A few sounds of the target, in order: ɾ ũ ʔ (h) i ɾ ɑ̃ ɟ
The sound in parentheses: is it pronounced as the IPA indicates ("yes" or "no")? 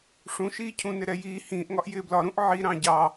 no